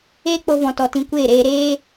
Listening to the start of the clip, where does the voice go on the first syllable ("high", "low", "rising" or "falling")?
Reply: high